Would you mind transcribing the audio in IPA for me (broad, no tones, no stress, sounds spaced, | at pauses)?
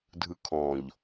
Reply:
dʱ ɯ kʰ ɔ̃ ʎ